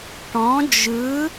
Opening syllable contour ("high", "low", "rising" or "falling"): rising